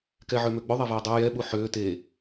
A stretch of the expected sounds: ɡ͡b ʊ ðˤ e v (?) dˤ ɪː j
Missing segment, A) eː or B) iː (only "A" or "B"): A